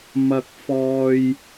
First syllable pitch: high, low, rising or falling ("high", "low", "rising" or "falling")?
high